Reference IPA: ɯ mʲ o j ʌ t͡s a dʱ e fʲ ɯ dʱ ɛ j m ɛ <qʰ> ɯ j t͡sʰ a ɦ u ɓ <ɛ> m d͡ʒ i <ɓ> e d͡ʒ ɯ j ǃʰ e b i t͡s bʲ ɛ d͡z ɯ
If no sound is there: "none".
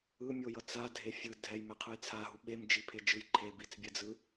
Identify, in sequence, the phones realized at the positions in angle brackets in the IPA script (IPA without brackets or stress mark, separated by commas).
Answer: qʰ, e, pʰ